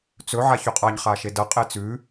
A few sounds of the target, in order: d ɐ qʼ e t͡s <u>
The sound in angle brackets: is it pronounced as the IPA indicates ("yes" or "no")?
no